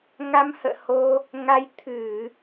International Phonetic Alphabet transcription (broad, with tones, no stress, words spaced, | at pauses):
ŋa˧mhə̰ː˧˨ho˧ | ŋa˧j t̪ʰɨ˧˩˨